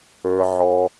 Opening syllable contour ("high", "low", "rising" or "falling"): low